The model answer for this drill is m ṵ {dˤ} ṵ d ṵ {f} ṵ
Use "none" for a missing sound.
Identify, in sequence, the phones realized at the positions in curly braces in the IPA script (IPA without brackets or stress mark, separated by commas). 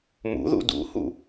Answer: ð, h